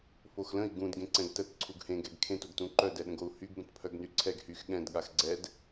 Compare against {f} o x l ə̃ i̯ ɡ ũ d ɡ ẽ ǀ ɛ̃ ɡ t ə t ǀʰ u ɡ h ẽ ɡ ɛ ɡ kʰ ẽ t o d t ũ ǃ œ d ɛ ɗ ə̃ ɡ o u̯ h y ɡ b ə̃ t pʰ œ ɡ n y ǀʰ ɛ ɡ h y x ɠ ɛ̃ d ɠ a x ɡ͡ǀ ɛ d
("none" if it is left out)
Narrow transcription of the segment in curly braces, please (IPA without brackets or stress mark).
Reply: f